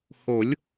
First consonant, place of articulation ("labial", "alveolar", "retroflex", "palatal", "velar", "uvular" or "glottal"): glottal